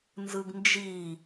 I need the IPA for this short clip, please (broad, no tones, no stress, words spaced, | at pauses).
nzɯɡnd͡ʒi